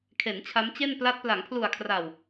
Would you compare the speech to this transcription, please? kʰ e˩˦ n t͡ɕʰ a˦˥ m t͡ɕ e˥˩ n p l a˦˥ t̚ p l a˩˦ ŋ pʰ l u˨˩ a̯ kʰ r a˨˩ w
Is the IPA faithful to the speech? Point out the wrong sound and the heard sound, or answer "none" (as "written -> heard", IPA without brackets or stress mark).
none